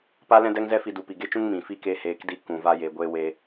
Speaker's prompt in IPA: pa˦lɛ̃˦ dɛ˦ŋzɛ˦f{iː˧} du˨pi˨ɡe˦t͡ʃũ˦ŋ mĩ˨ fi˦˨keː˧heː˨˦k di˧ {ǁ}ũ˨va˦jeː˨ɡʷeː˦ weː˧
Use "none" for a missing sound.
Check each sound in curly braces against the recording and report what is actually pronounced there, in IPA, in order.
i˧, k

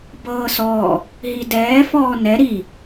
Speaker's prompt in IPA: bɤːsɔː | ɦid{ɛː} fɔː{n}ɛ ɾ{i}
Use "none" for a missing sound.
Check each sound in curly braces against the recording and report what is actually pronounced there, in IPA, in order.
ɛː, n, i

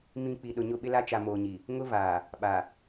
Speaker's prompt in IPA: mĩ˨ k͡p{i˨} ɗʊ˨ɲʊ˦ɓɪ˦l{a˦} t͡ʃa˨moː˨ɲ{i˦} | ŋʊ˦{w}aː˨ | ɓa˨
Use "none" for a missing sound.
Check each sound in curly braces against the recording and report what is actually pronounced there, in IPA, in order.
i˨, a˦, i˨, v

